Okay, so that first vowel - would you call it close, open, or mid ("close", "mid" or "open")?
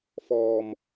mid